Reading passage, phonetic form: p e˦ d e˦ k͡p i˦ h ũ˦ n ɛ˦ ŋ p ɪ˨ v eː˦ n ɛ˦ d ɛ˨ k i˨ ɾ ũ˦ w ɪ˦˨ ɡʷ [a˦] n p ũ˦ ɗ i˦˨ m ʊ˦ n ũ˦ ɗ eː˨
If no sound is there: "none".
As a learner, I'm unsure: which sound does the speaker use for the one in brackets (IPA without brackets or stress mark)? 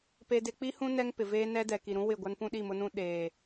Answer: a˦